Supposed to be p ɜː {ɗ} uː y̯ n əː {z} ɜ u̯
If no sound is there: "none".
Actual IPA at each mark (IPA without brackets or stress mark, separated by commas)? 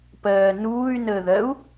n, ð